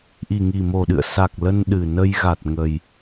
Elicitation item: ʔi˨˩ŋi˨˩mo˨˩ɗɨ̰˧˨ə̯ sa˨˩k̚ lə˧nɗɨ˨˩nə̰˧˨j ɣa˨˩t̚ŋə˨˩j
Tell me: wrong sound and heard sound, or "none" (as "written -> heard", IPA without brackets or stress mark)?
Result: ə̰˧˨ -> ə˧